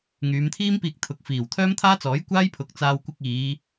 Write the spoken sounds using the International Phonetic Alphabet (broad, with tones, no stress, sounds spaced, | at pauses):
ŋ yː˨˧ m t̪ʰ iː˥ m p iː˧ k̚ t̪ʰ ʊ˨ k̚ f iː˨˩ w t̪ʰ œː˥ m t̪ʰ aː˥ t͡s ɔː˨˥ j kʷ aː˥ j pʰ ʊ˨ k̚ t͡s aː˧ w kʷ ɪ˧ k̚ iː˨˧